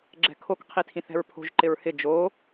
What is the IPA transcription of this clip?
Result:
ɡ͡ǁɛ̤kʰok qʰitʰĩθɛ̤ɹpʰo̤ʒ ǃɪɹhɪ d͡ʒo

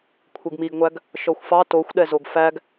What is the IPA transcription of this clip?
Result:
kʷʰeɡmiɡŋʷæɡ | ʃɔxʷfɑ toxʷɗɛzoɡ fæɡ

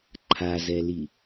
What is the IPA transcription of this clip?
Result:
ǃʰazɛli

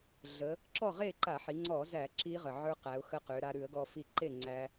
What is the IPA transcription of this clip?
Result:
ɮə˩˧ | ǁɔ˥˨ʁe˥˨ ǃa˧˩˧ħi˩˧ŋ͡ǀɔ˧˩˧zæ˧˩˧ ǁi˦˥ʁə˨˩ʕə˞˦˥ qæ˩˧ʊ̯xə˦˥qø˩˧ ɾa˧ɾʉ˧˩˧ə̯ɡɔ˧ fi˧ǃe˥˨ ŋ͡ǀæ˦˥

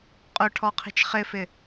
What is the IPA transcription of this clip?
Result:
qʼʊʈʰɔqʰi̤t͡ʃ χɪfɪ

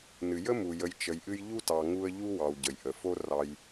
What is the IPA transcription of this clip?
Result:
nɨ˩jə˥mu˩jə˨j t͡ʃə˨jʔɨ˦jʎu˥tɑ˨ ŋu˦ə̯ʎu˥ wɑ˨wɟə˩jʔə˩ fo˦rɑ˨j

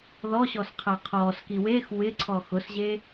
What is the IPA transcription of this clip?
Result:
ðɔɕɔsqʰa qʰɔːski wex wɪǀʰɔ xʊsʑe

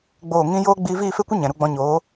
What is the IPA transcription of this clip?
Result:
ɡ͡boː˦˨ ŋĩ˦ joː˦ ɡ͡biː˧viː˦˨fe˦kʷə˦ ɲɛ̃˨ɾu˧ɡ͡bɔ̃˧ɲoː˨˦

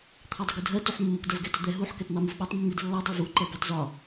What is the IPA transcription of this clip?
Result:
t̪ʰɑdˤəɡudʱɜ tuħmːʊk dɜvɡɛtʊd̪ɛ ɦuħ kɛtn̪ɑmuvɓɑtˤ mːidlːɑ dˤuvu ǃɜbɑtzɒ

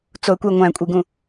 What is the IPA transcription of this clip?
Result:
t͡soə̯kʷe ŋʷæ̃kʷʼiɡũ

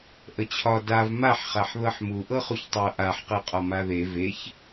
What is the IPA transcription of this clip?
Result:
ʔət͡ɕʰɒ dav maħχaħ ðɤħmu ʔɤχuçtˤɤ ʔaħqɤ qʼɒmaðe veç

